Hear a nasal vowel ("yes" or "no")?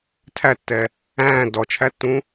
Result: yes